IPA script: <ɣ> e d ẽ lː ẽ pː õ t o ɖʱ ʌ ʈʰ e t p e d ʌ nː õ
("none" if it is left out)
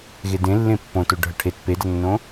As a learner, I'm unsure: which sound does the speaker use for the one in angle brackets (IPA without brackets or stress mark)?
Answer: ɣ